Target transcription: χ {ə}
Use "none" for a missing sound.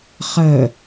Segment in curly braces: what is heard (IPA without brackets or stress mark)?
ə